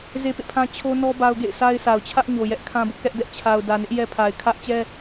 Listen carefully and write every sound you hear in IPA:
z e˦ p ḛ˦˨ pʰ ã˦ t͡ɕʰ o˦ n ɔ˦ b a˦ ʊ̯ ɡ ḛ˦˨ ɪ̯ s a˦ ɪ̯ s a˨ ʊ̯ t͡ɕʰ ä˦ ʔ ɲ o˨ j ɛ˦ ʔ kʰ ã˦ b ʊ˦ ʔ k ɛ˦ ʔ d ɛ˦ ʔ t͡ɕʰ a˨ ʊ̯ d ä˨ n ɪ˦ ʔ j ɛ˦ pʰ a˨ ɪ̯ kʰ ä˦ ʔ t͡ɕ ɛ˦

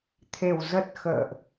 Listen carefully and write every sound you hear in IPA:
t̪ʰ e˨˩ w z ə˨˩ t̚ x ə̰ː˧˨ ʔ

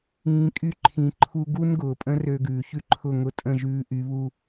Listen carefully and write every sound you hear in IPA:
ĩː˧ kʼ y˦˨ ǃʰ ĩ˧ ǃʰ u˦ ɡ u˦ n ɡ ʊː˨ pʼ ə̃˦ r ø˧ ɡ ʉː˨ ç ʉ˦ ǃʰ ʊ˦˨ ŋ ʊ˧ tʼ ə̃˦˨ ʒ ʉː˧ ʔ y˨˦ β u˧

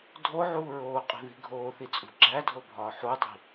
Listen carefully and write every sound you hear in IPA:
dʱ o ʕ uː ɹ oː qʼ i̤ ð i̤ ɡʱ oː θ i t͡sʼ ṳ ɡ͡ǁ æ dʱ o bʱ ɒː ħ u dˤ i̤

